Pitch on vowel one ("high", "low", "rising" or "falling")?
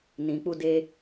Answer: low